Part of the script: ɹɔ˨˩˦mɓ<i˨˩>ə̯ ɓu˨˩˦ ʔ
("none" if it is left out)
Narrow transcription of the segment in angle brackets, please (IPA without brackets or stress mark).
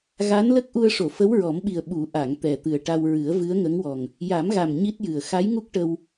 i˨˩